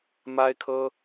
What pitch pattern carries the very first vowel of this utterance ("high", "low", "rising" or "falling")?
high